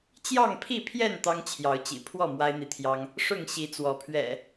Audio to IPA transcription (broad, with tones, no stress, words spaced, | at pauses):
t͡ɕjɑ˥˨ŋpʰi˥˨pʰjɛ˥˨n t̪ɑ˦ŋt͡ɕʰjɑ˨˦ʊ̯t͡ɕḭ˨˩ pʰwɔ˥˨ mwa˦ɪ̯n̪i˨t̪ʰjɑ˦ŋ | ʂʊ˥˨ŋɕi˨˦ t͡swɔ˨˦pʰɥɛ̰˨˩